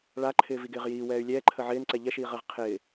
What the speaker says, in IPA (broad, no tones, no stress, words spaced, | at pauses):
ɭaǃʰɪː viɡɪːʁjiː wɛːy̯lʲɛːǃʰə ʕɪːnǀɛ ʎɛʃiːʁəːʁ qʰɪː